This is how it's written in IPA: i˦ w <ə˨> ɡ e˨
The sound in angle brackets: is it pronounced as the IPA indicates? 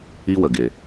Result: yes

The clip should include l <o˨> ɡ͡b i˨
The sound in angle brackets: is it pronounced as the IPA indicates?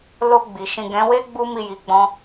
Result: yes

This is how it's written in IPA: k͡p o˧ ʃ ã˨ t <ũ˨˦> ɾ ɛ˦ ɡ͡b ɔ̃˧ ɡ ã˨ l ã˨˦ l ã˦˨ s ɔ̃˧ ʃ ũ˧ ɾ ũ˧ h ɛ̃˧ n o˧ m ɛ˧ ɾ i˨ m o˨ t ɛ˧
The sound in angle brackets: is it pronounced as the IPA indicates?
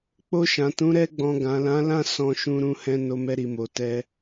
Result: yes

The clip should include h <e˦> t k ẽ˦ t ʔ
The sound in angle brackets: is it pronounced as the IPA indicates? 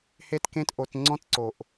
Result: yes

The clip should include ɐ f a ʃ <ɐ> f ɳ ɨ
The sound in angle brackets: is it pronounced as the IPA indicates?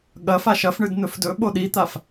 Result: yes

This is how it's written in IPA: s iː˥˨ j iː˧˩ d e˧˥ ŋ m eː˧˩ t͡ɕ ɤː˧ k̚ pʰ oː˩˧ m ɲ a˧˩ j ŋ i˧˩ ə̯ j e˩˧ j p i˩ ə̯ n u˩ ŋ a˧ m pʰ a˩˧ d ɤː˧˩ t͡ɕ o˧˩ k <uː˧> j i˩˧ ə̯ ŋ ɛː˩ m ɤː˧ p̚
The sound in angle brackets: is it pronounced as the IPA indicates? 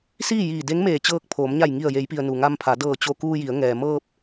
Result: yes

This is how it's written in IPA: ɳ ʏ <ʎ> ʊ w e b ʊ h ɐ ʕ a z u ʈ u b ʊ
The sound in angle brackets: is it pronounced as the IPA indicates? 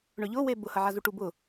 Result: yes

